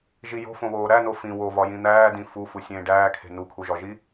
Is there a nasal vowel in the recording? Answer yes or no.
yes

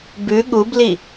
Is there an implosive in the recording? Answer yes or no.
yes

